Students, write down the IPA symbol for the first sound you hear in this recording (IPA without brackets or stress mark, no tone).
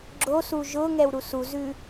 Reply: ɡ͡ǁ